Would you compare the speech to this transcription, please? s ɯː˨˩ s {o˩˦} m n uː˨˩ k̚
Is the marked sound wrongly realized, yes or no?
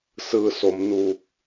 no